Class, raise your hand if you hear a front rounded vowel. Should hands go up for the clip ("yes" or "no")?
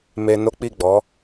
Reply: no